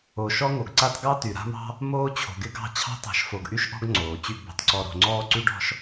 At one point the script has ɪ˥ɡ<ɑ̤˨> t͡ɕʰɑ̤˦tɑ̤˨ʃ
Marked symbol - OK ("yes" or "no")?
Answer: no